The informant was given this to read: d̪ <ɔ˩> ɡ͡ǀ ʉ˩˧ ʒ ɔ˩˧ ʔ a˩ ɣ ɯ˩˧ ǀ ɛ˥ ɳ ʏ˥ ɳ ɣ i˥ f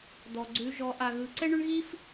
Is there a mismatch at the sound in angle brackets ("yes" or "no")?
no